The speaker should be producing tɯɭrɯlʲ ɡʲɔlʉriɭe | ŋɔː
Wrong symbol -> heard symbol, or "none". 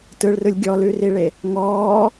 none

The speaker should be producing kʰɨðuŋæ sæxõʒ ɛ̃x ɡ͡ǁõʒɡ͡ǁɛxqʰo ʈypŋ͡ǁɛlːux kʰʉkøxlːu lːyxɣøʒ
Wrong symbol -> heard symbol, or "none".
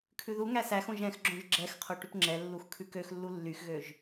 ɨ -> ʉ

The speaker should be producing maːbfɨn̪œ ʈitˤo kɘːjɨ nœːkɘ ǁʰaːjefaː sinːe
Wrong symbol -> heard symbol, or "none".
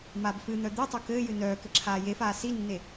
ʈ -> d̪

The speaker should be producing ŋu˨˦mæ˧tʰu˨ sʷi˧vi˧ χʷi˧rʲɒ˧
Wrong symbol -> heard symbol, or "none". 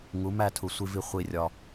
æ˧ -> æ˦˨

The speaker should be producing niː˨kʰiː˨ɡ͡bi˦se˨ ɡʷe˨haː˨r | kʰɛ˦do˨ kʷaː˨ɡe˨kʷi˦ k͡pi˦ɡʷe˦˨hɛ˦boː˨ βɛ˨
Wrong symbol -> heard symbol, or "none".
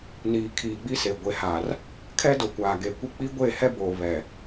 none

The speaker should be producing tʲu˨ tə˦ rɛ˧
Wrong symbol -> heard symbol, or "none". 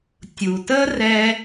none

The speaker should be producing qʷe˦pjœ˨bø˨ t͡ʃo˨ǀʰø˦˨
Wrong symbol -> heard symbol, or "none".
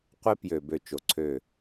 œ˨ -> ø˨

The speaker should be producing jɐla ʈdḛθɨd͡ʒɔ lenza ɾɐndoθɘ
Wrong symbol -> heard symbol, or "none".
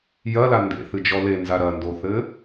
ʈ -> n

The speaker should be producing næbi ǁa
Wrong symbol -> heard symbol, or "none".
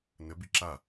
æ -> ə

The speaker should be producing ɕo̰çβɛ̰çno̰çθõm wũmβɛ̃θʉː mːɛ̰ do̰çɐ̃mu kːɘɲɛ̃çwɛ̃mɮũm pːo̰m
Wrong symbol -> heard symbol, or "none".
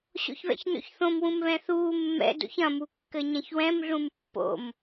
ʉː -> uː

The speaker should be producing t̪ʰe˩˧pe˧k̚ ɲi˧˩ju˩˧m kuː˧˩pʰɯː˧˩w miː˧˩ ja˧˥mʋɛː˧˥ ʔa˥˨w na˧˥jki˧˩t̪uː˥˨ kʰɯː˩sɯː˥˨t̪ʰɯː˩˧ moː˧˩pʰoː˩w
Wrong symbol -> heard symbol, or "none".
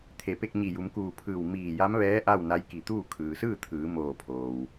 none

